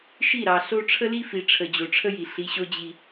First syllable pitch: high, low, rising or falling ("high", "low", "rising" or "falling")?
falling